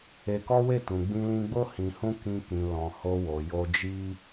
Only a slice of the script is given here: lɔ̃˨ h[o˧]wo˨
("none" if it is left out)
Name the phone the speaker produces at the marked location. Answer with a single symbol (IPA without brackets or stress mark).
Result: o˧